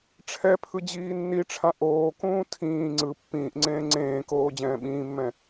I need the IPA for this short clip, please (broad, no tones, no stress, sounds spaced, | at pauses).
ʈ͡ʂʰ ɛ pʰ ɯ d͡ʑ iː nː i ʈ͡ʂʰ ã ʔ oː k ũː tʰ ĩː ŋ͡ǀ ɯ pː ĩː ʔ ŋ͡ǀ ẽː ŋ͡ǀ ẽː k oː d͡ʑ ɛ̃ː ɓ ĩː mː ɛ̃